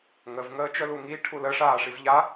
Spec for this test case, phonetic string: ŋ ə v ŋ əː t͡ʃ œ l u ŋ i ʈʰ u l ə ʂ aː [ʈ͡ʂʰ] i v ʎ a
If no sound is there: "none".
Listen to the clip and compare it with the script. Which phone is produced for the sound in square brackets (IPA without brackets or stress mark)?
ʂ